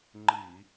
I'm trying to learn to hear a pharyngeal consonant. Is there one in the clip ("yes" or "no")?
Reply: no